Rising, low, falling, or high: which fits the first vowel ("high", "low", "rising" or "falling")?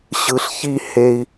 low